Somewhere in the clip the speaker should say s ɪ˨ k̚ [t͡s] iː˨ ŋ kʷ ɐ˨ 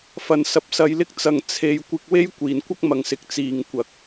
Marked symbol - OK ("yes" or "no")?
yes